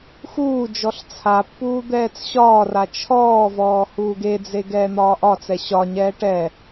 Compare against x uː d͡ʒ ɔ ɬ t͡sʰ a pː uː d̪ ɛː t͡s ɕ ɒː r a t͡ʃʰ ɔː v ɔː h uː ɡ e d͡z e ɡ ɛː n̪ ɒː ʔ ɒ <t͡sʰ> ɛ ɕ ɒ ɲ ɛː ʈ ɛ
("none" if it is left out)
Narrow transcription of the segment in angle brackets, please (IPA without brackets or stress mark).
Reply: t͡s